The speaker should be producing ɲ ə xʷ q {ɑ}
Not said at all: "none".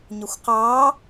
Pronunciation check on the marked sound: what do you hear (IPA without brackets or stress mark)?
ɑ